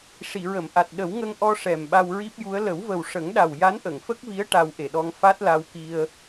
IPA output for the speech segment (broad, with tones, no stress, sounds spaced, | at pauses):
ʂ i˨˩˨ ɹ ə˨˩˨ m ʔ a˨˩ t̚ ɗ ə˨˩˦ w ŋ ə˧ ŋ ʔ ɔ˧ ʂ ɛ˨˩ m ɓ a˧ w ɹ i˦˥ p̚ j u˧˥ ə̯ l ə˨˩˦ w v ə˨˩ w ʂ ə˨˩˦ ŋ ɗ a˨˩ w j a˧˥ n ʔ ə˨˩˨ ŋ f ə˦˥ k̚ v i˧˥ ə̯ ʈ a˧ w ʔ e˨˩ ɗ ɔ˧ ŋ f a˦˥ t̚ l a˧ w k i˧ ə̯